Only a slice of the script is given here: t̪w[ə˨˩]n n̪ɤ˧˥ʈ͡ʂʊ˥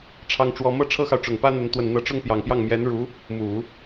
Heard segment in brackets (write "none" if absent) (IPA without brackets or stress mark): ə˨˩